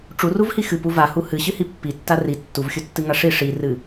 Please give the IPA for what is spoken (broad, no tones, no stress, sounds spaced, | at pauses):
ʈ͡ʂ u r u v h i x ɨ p u v a h u h ɨ ɕ ɨ h i pː i tː a r i tː u v xʲ u tː ɨ ŋ a ʂ i ʂ i r ɨ